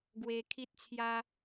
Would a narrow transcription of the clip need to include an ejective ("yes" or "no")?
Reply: no